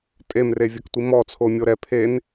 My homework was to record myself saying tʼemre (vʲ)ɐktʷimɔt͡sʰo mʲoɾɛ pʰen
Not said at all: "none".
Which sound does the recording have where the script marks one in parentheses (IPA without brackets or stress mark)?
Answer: vʲ